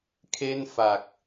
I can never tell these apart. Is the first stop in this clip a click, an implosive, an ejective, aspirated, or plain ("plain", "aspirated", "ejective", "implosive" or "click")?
aspirated